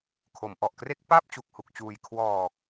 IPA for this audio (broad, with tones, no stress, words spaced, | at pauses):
kʰo˩˦mʔɔ˨˩ʔkre˥˩k̚ paː˥˩p̚ t͡ɕu˨˩k̚hu˨˩k̚t͡ɕuː˨˩j kʰwɔː˨˩k̚